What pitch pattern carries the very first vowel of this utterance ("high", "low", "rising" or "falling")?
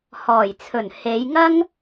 low